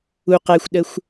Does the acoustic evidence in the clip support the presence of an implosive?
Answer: yes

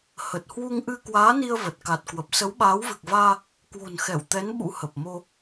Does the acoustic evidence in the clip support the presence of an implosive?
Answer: yes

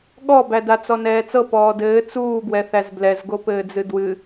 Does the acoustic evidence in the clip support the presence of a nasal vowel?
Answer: no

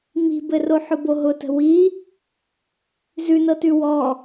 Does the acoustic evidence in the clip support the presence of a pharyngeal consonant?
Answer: yes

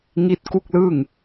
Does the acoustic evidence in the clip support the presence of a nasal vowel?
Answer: no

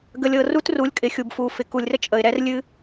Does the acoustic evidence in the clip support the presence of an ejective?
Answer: yes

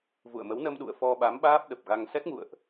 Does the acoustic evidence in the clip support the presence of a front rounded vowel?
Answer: no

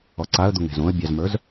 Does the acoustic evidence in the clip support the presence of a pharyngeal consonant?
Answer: no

